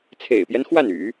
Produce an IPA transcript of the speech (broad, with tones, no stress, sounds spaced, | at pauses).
t͡sʰ ḛ˨˩ ɪ̯ p j ɛ˦ n x w a˥˩ n y̰˨˩˦